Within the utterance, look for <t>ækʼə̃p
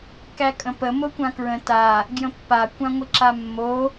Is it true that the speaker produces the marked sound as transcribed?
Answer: no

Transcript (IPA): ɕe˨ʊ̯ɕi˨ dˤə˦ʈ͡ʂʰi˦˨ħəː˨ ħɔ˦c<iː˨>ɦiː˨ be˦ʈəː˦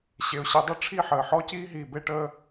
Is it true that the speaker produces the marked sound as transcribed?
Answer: no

